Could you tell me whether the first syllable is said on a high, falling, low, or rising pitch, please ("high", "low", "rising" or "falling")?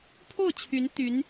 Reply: falling